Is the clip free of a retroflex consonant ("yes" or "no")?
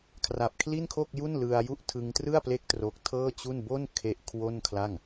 yes